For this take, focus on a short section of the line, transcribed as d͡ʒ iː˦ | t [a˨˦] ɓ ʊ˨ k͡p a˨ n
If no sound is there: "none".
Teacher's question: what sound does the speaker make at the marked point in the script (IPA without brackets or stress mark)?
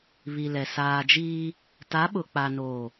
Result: a˨˦